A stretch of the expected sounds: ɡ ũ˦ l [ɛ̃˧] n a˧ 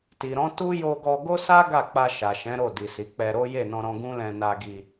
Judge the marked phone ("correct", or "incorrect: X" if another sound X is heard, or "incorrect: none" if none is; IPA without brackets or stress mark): correct